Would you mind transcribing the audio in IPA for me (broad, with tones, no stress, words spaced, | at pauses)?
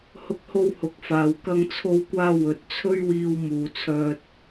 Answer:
hʊ˧k̚ho˧w hʊ˨˥k̚faː˨w kɐ˧ŋt͡sʰo˧wkʷaː˧ wɵ˨t̚t͡sʰɵ˥ɥwiː˧w muː˨t͡sʰœː˧t̚